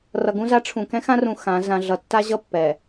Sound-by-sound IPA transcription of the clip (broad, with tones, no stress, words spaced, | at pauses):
rʌ˨ɡũ˦za˦ ʈ͡ʂʰũ˨ kɛ̃˦xã˦rũ˨ xã˨˦ zã˨ɮʌ˨tːa˦ʑʌ˦ pːɛ˨